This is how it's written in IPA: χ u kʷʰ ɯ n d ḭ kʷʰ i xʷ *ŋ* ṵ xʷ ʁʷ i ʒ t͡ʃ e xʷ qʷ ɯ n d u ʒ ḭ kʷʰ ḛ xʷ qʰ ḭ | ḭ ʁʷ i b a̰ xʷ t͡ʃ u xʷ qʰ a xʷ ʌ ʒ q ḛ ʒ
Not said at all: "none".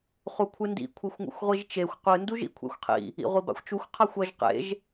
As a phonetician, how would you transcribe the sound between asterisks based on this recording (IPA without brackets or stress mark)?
ŋ